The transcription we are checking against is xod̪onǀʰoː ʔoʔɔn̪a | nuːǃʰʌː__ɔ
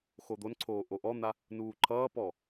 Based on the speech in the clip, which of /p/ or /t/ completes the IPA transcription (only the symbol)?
p